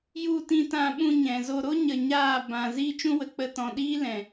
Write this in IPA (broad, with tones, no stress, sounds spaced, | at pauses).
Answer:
j u˦˨ t ĩ˧ t ã˧ ɓ ũ˧ ɲ ɛ̃˨ z o˧ ɾ o˦ ɲ ə˧ ɲ aː˦˨ b ã˨ z iː˦ t͡ʃ ũ˦ w ə˨ k͡p ə˧ t ɔ̃˧ ɗ iː˦ l ɛ̃˨